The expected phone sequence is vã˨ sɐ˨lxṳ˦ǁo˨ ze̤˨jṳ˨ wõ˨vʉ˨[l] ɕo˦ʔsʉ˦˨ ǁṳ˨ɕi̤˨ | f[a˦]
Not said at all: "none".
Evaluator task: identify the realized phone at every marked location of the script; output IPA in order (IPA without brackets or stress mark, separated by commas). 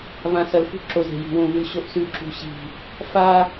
l, a˦